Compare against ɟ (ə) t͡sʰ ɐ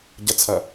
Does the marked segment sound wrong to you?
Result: no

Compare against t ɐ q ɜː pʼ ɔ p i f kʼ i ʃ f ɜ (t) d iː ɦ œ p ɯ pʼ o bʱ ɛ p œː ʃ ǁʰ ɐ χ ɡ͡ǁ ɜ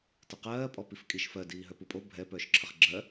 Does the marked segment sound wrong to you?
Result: yes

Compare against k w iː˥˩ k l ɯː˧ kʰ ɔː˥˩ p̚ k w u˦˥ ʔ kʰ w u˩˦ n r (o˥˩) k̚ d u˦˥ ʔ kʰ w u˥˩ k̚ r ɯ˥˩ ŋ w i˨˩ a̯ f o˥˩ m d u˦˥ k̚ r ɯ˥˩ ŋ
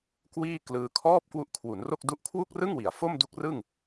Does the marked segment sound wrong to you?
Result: no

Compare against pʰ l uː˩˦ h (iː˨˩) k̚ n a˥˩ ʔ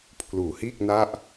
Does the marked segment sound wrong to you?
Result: yes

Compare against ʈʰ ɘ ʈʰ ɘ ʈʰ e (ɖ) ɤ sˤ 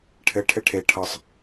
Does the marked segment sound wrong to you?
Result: yes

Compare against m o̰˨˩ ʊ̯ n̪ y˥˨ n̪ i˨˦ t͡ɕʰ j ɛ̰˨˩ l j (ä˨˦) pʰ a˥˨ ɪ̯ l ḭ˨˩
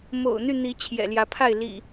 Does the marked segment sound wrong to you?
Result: no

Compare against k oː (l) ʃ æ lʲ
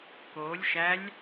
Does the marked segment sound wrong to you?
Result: yes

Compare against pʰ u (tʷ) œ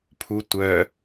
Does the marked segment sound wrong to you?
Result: no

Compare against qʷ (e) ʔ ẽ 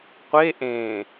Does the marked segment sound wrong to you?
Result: no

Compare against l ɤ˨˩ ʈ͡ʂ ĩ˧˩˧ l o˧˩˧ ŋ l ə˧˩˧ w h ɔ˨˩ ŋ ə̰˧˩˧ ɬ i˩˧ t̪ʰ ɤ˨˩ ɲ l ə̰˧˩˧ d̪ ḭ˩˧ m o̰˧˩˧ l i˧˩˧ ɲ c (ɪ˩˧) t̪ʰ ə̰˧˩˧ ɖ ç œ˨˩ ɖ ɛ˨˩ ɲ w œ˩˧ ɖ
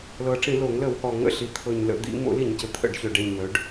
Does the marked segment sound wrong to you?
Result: yes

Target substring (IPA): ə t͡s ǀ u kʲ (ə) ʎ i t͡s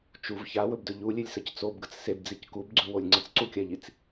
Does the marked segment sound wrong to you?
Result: yes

